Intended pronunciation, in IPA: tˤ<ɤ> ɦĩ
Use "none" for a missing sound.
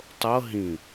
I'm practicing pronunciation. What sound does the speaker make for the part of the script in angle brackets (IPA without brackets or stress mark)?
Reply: ɤ